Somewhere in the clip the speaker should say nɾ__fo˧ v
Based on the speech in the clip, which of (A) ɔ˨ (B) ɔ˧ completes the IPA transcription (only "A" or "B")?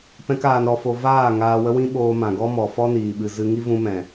B